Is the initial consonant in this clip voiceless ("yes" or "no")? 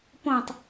yes